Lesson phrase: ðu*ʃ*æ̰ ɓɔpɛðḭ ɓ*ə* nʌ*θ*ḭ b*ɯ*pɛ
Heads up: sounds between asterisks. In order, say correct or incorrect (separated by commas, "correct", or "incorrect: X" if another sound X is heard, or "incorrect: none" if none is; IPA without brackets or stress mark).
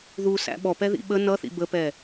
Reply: incorrect: s, correct, correct, incorrect: ə